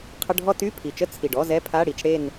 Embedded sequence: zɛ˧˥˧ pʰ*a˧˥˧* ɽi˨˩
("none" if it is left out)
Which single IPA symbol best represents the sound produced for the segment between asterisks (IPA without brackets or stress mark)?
a˧˥˧